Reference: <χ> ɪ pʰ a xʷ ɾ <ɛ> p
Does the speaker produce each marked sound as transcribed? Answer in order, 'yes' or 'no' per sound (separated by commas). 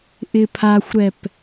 no, yes